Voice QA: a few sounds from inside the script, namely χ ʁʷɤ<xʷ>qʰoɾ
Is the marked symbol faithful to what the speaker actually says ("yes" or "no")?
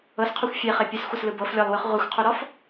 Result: yes